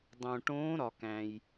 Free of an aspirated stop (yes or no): yes